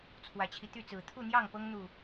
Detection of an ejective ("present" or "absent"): absent